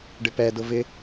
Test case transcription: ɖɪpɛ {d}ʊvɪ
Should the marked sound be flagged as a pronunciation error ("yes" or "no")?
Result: no